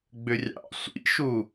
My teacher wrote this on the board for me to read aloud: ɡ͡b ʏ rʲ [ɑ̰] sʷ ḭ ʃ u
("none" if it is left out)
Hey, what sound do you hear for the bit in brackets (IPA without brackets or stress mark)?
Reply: ɑ̰